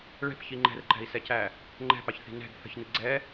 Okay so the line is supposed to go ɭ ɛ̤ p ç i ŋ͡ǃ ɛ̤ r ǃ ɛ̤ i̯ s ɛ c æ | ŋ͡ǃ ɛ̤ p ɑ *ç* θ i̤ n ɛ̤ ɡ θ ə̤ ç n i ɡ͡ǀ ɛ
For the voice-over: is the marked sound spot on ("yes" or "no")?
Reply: yes